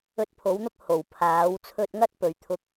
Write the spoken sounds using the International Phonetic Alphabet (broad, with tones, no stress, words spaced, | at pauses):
ɵ˧t̚pʰo˨˥wn̪ʊ˥k̚ ho˨˩wpʰaː˨˥w t͡sʰɵ˧t̚ŋɐ˥t̚ pɵ˨˧ɥt̪ʰʊ˥k̚